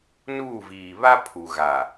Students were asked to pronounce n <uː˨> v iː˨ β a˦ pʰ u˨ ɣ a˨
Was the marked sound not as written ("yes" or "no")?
yes